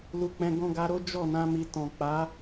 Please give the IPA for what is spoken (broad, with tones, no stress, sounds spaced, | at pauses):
l u˧ k͡p ɛ̃˧ ɡ ɔ̃˧ ɡ a˧ ɾ o˦ d͡ʒ ɔ˦˨ n ã˧ m i˨ t ɔ̃˨ k͡p a˨˦